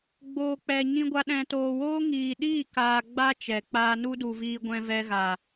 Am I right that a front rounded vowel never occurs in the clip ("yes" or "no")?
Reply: yes